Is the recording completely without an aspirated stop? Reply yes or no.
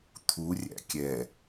no